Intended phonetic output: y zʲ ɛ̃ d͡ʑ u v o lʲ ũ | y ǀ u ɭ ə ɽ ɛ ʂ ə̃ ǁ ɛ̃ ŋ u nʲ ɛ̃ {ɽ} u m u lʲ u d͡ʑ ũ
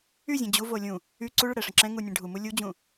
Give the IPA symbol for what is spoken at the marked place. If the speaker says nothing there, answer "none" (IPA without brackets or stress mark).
ɖʱ